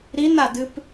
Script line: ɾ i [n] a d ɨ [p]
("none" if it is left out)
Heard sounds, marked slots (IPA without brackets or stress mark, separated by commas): n, p